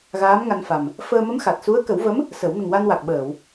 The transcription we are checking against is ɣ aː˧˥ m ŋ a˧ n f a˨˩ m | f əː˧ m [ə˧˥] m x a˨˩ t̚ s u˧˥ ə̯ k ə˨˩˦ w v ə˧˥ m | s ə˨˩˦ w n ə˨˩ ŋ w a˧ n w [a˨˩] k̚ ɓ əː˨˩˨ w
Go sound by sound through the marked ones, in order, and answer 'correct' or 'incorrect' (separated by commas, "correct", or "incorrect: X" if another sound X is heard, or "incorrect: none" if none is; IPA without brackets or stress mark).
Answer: correct, correct